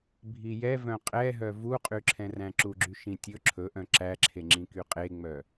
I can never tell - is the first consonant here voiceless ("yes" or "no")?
no